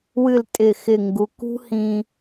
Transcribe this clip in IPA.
wɨ˧˩l tʼɪ˧˩xɪ˧˩ ŋɡu˩˧kṳ˥hĩ˧

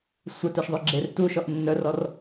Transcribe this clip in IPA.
sʷɛtœʃðˤø ɡ͡ǁer tuʃɔʔ nːœrɔr

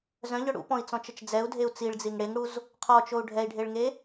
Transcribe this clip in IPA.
zœ̃ʎœ ɽṵpɔ̃i̯t͡sɔ̃t͡ʃət͡ʃ d͡zɛu̯dʱeu̯ t͡siɭd͡ziŋ ɽeŋɽuz | qʰɔt͡ʃou̯ ɖʱɛi̯ɖʱeɭŋe

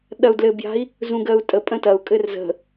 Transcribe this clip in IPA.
ɗɐu̯dlɘbja̤i̯ | zũɡɜu̯tʼəpʼə̃ tɐu̯kʼɘr zə̤

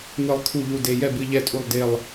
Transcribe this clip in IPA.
nɨ˨˩lˠ kʰu˨˩ʎu˨˩de˨˩ jɛ˦˨bɨ˦˨ ʎɛ˦˨tʼu˦˨lˠ de˦˨lˠ

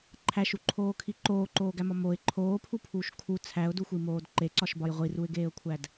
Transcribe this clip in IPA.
ǃʰæʃuǃʰoːkʰi ǃoːǃoːɡæmɒ moɪ̯ ǃʰoːpʰupʰuːʃ kʰu t͡sʰæʊ̯duxʷimoːd ǃeǀɒʃbɒj ʁʷiruɪ̯ɡeːʊ̯kʷʰæd

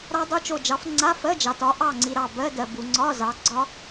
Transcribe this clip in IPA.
ɾɑ˦˥dˤo˧˥˧t͡ʃo˦˨d͡ʒɑ˨˥f ŋ͡ǀa˧˥˧fɜ˧˥˧d͡ʒɑ˨tɒ˨˥ ʔɑ˦˨ŋ͡ǀi˨ ɾɑ˦˨bɜ˧˥˧dɜ˨bu˨ ŋ͡ǀɒ˧˥˧zɑ˨˥ɡ͡ǀɒ˦˥

